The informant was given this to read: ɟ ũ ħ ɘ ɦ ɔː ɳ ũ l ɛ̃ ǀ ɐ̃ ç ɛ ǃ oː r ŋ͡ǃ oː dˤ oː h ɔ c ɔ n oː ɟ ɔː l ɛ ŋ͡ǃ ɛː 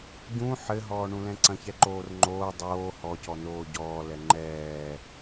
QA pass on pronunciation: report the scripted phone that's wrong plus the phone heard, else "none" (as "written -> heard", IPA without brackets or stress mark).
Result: none